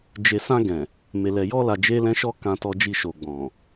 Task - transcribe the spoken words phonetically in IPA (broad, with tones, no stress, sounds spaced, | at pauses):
d͡ʒ e˨ s ã˧ ɡ ɛ̃˨ | m e˨ l ɛ˨ j ɔ˧ l a˨ d͡ʒ e˧ l ɛ̃˧ ʃ ɔ˧ k ã˨ t ɔ˨ d͡ʒ i˨ ʃ o˨ ɡ͡b ɔ̃˨